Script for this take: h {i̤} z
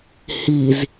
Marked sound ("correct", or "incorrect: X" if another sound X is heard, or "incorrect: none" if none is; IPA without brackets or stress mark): incorrect: i